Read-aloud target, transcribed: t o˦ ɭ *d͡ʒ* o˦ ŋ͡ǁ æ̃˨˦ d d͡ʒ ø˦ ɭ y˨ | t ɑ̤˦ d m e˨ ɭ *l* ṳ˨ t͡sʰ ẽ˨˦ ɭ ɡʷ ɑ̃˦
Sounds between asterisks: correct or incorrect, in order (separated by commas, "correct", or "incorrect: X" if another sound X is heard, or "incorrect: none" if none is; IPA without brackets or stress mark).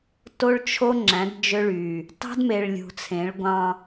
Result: incorrect: t͡ʃʰ, incorrect: lʲ